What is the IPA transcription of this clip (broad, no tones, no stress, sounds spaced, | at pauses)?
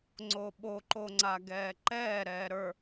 ŋ͡ǀ oː ɓ o ǃ o ŋ͡ǀ a ɡ ɛː ǃ ɛː ɾ ɛː ɾ ə˞